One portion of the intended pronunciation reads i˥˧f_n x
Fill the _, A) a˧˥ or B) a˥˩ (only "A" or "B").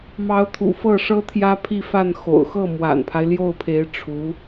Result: B